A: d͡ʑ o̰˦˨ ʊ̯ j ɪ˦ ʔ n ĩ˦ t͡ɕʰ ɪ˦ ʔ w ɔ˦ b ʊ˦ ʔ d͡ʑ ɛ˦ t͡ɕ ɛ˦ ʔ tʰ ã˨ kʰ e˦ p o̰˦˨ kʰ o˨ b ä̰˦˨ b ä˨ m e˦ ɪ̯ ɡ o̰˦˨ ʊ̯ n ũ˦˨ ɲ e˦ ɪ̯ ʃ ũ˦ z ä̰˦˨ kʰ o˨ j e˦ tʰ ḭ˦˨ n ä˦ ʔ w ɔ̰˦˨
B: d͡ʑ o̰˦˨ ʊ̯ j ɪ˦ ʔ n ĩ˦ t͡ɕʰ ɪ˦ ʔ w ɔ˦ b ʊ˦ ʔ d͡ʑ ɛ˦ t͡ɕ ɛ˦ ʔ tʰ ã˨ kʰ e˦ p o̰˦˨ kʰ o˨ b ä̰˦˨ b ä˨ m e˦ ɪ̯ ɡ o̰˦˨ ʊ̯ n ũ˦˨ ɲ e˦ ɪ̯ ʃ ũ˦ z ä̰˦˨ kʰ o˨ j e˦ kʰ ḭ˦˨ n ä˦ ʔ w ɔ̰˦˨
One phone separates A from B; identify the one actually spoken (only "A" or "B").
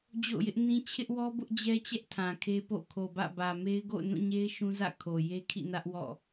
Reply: B